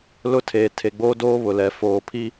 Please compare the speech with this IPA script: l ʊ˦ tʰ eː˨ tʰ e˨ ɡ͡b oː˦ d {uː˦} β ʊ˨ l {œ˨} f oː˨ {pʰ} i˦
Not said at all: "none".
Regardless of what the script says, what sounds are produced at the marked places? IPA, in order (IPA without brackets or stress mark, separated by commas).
oː˦, ɛ˨, pʰ